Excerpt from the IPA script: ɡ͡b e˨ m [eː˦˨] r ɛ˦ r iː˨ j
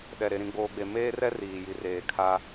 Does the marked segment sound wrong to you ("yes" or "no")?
yes